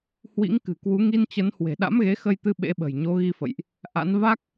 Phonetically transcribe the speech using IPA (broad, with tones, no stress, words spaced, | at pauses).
hwḭ˧˥ŋkɨ̤˨˩kwu˨˦ ŋi˧nt͡ɕə˨˦n hwe̤˨˩ɗa̰˧˥mɣe˨˦ xə˧jt̪ɨ˧ ɓḛ˧˥ɓə̤˨˩j ɲo˨˦ɣi˧fə̰˧˨jʔ | ʔa̰˧˥n va˦˥k̚